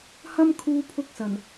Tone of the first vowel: high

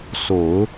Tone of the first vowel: low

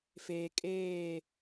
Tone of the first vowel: low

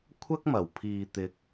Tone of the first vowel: high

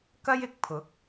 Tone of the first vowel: high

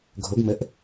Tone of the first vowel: rising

